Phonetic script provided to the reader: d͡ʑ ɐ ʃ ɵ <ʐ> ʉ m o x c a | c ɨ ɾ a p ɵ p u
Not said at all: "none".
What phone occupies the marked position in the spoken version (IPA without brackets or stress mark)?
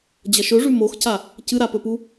ʐ